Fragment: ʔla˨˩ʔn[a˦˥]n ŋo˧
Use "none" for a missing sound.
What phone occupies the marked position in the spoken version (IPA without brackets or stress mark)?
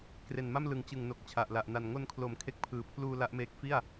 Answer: a˨˩